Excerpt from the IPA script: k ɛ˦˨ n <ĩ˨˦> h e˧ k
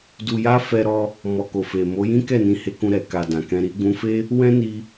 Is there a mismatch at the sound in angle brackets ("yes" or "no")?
no